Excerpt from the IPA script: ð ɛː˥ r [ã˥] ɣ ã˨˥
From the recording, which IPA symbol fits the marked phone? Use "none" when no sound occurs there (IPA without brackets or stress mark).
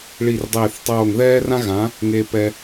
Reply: ã˥